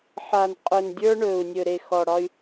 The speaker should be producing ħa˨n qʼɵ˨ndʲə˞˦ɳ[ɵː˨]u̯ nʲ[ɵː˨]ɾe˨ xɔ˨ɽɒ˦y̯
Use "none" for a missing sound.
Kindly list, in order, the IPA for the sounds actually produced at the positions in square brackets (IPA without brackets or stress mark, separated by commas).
ɵː˨, ɵ˨